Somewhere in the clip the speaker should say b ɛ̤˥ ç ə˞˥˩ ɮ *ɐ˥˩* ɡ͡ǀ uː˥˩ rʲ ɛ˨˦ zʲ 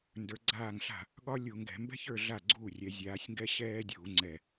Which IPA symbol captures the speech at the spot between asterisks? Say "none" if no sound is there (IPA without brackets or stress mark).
a˥˩